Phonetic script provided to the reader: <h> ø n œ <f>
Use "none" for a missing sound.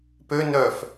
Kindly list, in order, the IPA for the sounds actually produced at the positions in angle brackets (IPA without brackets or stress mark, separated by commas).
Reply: p, f